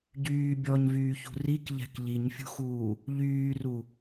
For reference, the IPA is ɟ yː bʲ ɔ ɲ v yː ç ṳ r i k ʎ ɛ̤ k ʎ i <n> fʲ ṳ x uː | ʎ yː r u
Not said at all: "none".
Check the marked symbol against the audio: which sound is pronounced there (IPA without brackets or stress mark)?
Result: ɲ